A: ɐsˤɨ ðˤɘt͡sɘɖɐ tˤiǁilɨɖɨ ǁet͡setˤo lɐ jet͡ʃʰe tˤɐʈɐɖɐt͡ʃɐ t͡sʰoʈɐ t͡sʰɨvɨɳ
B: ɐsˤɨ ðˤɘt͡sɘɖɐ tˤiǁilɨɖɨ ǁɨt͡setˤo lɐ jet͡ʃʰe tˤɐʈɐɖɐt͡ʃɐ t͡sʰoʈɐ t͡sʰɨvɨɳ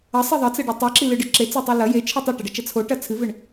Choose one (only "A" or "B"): A